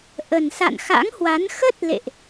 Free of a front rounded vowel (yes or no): yes